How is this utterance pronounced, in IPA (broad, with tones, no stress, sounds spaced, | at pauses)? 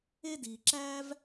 e˦ d iː˨ ǁ æː˦ v